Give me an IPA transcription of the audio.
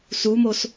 sumos

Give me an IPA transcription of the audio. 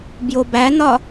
bjobæn̪ɒ

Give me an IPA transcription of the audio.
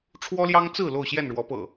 ʈ͡ʂʰwɔ˦ljɑ˦ŋt͡sɹ̩˥˨ lo˥˨ʊ̯ɕjɛ˥˨nɻwɔ˨˦pɤ̰˨˩

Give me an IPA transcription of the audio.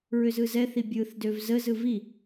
ɹʏzɯzɛθi bʲɯθdøv zəzɯ vi

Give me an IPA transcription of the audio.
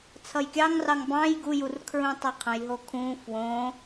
t͡sʰʌjkʲɑŋrɑŋ bɑ̃j ɡujur kʰɹũtˤʌqʰə̃jɦo kʰũ fwõ

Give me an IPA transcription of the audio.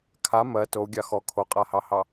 kʰa mɜ tou̯ɡʲɑ xɔ kʰoqʼahɑhɑ

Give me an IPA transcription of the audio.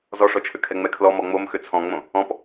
zɔʂɔt͡ʃʰʏkʰɛ ŋ͡mɛkʰlɔ mɔŋ͡momxʏ t͡sʰɔ̃ŋ͡mõ | ɔ̃p

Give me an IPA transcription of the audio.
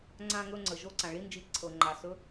ŋ͡ǀã˥˧ ŋɵ˥˧ŋ͡ǀə˩ ʒo˧˥˧ǀã˩ɭi˧˥˧nd͡ʒi˧˩˧ ǀʰɤ˩ŋ͡ǃa˩ sɵ˧˥˧

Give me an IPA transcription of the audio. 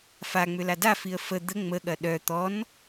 faŋ͡mʏla dafiə̯ fə d̪ə ŋ͡məɠɐ ɗœ t̪ɔn

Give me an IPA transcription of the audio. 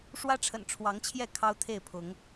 ʂwä˦ʈ͡ʂʰə̰˨˩nʈ͡ʂʰwɑ˨˦ŋt͡ɕʰjɛ˥˨ kʰɑ˦ʊ̯t̪ʰe˥˨ɪ̯pʰʊ˨˦ŋ

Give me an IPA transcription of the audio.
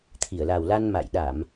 t̪ʰi˧˩ə̯la˨˩wla˧n ma̰˧˨jɗa˧˩˨m

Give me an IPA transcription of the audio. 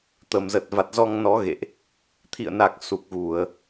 t̪ə˨˩mzə˨˩t̚ va˨˩t̚zɔ˧ŋnɔ˨˦ ɣḛ˧˨ʔ | t̪ʰḭ˧˨ə̯na˨˩k̚ su˨˩k̚ɣu˧˩˨ə̯

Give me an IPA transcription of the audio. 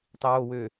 tˤiwo wø

